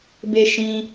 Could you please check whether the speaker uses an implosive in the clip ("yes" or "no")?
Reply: no